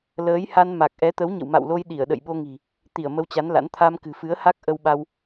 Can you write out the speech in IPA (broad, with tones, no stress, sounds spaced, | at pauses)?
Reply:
l əː˨˦ j h a˧ n m a˨˩ k̚ ʔ ɛ˨˦ t̪ ə˨˦ w ɲ ə̰˧˨ w m a̰˧˨ w l o˧ j ɗ i˧˩ ə̯ ɗ ə̰˧˨ j ɓ o˧ ŋ i̤˨˩ | t̪ i˧˩ ə̯ m ə˧ w t͡ɕ a˨˦ n l a̰˧˥ n t̪ʰ a˧ m k ɨ̤˨˩ f ɨ˨˦ ə̯ h a˦˥ k̚ ʔ ə˧ w ɓ a˧ w